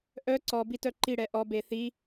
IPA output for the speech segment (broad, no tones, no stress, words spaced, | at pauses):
ʔœ ǀɔbi tœǃiɽɛ ʔɔbe θi